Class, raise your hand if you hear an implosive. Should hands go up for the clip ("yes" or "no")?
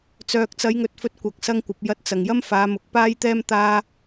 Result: no